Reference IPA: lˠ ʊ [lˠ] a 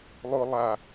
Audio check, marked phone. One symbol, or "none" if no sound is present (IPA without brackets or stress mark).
lˠ